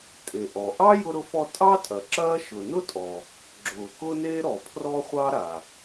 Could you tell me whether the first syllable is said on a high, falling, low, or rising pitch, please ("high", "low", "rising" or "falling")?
low